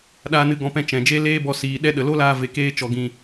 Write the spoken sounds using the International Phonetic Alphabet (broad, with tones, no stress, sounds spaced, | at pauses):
ɗ aː˧ n ɨ˧ ɡ ɔ̃˧ p ɛ̃˧ t͡ʃ ɛ̃˨ d͡ʒ e˦ l eː˦ b ɔ˧ s iː˨ ɗ ɛ˧ ɗ ə˨ l o˦ l aː˧ v e˧ k eː˦ t͡ʃ ɔ˧ ɡ ĩ˧